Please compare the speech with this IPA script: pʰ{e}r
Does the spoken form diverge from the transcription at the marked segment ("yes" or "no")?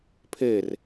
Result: no